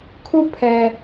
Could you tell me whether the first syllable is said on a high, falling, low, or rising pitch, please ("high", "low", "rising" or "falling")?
falling